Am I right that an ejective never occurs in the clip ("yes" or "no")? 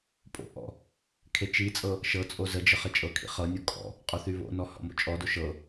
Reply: no